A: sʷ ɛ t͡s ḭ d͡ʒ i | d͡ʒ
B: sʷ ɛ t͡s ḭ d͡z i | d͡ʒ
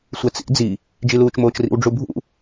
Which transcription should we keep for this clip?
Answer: B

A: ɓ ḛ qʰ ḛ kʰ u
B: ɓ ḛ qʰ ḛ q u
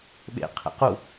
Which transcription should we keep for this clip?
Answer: B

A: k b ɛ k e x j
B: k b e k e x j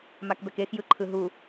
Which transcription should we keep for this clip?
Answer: A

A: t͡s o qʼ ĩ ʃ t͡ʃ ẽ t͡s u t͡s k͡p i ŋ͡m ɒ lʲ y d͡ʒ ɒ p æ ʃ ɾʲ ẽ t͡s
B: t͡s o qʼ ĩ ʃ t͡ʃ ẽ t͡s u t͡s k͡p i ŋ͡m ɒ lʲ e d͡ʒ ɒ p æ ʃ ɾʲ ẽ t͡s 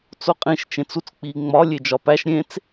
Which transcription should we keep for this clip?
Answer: B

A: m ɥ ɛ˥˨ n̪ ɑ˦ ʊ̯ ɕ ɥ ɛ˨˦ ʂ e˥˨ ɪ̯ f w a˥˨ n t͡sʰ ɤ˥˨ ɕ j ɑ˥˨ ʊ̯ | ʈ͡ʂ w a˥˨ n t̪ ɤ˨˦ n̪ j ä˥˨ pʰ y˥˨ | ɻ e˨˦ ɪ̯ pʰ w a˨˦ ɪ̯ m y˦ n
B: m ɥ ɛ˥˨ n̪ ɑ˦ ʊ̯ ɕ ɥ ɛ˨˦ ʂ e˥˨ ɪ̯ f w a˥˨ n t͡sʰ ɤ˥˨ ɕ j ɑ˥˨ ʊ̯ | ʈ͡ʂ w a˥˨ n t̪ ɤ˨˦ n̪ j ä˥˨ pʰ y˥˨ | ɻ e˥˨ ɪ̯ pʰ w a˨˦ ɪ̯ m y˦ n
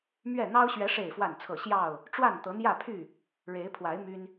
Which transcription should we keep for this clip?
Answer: A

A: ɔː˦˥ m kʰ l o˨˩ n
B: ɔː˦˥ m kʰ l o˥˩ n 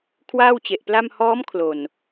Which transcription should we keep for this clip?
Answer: A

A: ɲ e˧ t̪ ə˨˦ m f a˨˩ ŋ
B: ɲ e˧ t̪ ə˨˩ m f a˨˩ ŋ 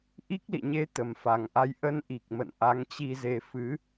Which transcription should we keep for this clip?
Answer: B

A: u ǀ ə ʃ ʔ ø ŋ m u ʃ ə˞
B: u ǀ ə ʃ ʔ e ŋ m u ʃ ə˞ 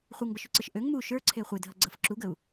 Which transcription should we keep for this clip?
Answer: A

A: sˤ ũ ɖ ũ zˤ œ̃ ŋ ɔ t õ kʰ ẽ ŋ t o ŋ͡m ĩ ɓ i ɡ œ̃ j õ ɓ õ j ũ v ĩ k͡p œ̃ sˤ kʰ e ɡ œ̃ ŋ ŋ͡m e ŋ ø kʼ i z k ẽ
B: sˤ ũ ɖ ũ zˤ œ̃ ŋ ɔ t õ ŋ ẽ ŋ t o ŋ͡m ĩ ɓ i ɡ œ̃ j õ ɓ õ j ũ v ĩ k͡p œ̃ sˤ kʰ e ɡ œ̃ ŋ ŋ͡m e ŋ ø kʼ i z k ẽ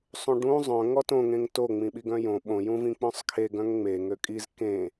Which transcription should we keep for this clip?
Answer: B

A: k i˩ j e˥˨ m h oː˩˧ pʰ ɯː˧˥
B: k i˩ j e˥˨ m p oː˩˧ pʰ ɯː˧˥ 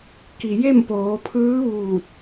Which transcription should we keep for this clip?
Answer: B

